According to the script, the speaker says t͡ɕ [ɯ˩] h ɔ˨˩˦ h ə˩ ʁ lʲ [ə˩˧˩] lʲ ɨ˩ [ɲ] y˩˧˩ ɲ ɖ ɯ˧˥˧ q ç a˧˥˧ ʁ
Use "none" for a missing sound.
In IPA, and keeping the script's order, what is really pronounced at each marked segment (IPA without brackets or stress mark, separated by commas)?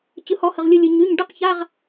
ɯ˩, ɯ˩˧˩, ɲ